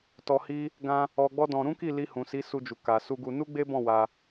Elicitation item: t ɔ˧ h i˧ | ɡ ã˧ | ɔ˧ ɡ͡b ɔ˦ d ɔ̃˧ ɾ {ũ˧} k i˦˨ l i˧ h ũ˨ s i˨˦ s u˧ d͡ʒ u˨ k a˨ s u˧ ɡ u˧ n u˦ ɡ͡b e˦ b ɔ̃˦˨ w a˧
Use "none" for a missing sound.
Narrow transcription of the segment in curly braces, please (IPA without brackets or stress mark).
ũ˦